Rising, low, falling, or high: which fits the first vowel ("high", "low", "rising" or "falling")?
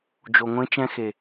low